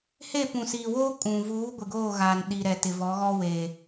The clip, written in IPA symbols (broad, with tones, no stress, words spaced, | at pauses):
he˦˨pũ˨siː˨woː˦ kʼũ˨ vuː˨˦ ɡʷɪ˨ɡoː˦˨ɣaː˨n ɗi˨ɾɛ˨ tɪ˨vɔ˨˦ɣɔ˦we˨